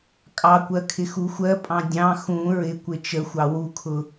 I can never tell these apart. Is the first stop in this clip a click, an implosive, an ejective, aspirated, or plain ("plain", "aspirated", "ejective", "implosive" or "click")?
ejective